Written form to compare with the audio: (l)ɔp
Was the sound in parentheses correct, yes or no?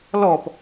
yes